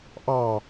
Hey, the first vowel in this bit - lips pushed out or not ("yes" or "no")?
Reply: no